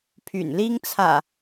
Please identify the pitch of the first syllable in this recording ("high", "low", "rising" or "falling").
low